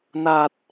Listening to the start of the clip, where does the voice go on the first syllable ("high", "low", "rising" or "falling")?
low